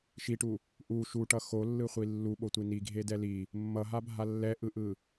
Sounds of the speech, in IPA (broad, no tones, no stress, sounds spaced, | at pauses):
ʃ i ʈ u | ʔ u ʃ u ʈ ʌ x o lː ɯ χʷ i lː u ɓ o tʷ i n i ɡʱ e d ɛ l i | mː ʌ ɦ a bʱ a lː ɛ ʔ ɯ ʔ ɯ